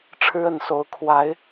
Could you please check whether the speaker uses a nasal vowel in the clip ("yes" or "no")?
no